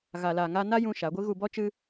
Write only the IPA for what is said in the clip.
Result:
ɣa˧la˧ŋa˦ na˦ jũ˧ ʃa˨˦ɡʷɨ˦ ɣu˧bɔ˦ t͡ʃɨ˦

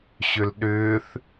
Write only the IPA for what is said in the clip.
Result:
ɕʏlɗʏːθ

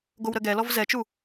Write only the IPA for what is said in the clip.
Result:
ɡowɾəɡɛlɔv zɛt͡ʃu

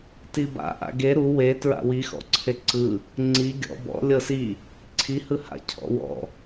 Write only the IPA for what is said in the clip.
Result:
tiba̰ ʔa̰ɡe ɾu we tɹa̰wixɔ̰ ǀʰeǀɯ | ŋ͡ǀi ɡʲɔ̰ bɔ̰ lʲɤsi | ǀʰi hɯha̰ cʰɔ̰wɔ̰

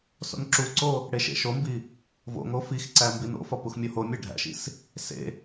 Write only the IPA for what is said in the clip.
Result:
so̰nǁuǀo | ɽeʃḛʃombi | vo̰ŋo fixǀæ mbino̰fɒ puxmʲohomʲæ ɖʱæ̰ʃḭs | sḛ

